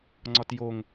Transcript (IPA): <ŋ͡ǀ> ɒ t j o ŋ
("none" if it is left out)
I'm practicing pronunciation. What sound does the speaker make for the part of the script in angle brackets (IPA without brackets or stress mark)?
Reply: ŋ͡ǀ